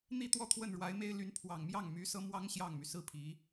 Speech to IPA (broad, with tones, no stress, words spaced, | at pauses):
n̪i˥˧t̪wɔ˥˧ t̪ʰwə˥˩nɻwa˧˥ɪ̯me˥ɪ̯ ly˧˥npʰwɑ˨˩ŋmjɑ˥˩ŋ my˧˥ sɤ˥ mwɑ˥ŋ ɕjɑ˥˩ŋmy˩ sɹ̩˥˩pʰi˧˥